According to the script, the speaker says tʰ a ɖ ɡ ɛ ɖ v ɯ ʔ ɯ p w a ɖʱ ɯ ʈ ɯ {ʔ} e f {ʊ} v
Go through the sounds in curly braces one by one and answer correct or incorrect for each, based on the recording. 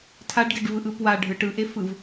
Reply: correct, incorrect: ɯ

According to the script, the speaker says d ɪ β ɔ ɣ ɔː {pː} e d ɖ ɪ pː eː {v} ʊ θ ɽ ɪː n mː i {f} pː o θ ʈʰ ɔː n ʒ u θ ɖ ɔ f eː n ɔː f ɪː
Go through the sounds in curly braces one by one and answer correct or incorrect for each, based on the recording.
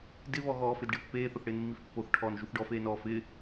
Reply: incorrect: f, incorrect: θ, correct

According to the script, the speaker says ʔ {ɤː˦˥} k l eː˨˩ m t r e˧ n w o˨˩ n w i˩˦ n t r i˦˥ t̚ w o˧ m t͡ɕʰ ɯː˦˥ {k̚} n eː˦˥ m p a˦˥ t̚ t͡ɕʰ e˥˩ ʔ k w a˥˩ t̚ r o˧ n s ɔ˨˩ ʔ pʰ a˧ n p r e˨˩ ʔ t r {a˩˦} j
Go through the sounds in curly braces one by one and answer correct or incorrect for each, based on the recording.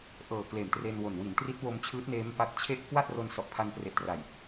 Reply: incorrect: ɤː˨˩, incorrect: t̚, incorrect: a˨˩

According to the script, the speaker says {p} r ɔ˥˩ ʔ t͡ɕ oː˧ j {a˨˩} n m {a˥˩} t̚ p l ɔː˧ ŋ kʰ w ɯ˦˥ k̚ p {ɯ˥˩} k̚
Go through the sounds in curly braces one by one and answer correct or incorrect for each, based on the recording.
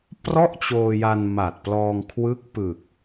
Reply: correct, incorrect: a˧, incorrect: a˨˩, incorrect: ɯ˨˩

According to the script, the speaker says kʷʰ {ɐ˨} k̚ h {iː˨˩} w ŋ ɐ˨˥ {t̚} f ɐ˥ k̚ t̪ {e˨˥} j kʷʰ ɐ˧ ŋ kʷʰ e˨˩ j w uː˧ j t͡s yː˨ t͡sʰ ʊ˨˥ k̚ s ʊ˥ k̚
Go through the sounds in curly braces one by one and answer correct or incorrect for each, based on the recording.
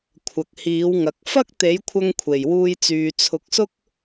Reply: correct, incorrect: iː˨˥, incorrect: k̚, correct

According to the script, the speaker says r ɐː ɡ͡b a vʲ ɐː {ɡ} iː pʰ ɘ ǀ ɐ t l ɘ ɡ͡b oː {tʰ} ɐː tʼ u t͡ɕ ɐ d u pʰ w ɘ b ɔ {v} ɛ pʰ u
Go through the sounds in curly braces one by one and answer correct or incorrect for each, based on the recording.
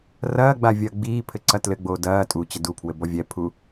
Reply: incorrect: ɡ͡b, incorrect: d, incorrect: vʲ

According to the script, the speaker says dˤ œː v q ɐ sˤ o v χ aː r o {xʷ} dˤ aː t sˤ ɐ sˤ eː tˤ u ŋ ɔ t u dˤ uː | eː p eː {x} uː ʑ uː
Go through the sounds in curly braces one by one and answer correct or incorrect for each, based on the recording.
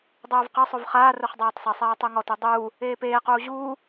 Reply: incorrect: χ, incorrect: q

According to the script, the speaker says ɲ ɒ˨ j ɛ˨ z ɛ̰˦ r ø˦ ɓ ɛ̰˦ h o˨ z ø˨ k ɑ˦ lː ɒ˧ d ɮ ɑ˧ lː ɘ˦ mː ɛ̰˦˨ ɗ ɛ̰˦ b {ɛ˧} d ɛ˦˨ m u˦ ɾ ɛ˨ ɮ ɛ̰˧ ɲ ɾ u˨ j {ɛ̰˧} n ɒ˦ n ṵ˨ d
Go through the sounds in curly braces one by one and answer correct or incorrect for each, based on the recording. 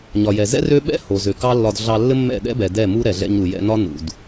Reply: incorrect: ɛ˨, correct

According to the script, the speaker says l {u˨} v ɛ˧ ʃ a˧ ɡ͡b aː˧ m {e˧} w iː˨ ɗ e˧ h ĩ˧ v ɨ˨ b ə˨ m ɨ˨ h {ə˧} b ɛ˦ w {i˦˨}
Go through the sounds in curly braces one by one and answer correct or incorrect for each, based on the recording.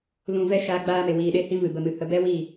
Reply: incorrect: ũ˨, incorrect: e˨, correct, correct

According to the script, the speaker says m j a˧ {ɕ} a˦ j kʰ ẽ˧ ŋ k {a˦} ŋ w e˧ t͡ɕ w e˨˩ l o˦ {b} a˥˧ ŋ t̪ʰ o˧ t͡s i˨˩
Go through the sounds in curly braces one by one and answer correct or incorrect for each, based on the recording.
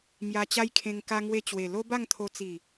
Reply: incorrect: t͡ɕ, incorrect: a˧, correct

